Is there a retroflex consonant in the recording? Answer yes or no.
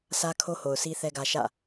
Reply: no